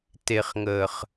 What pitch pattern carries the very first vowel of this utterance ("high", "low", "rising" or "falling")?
low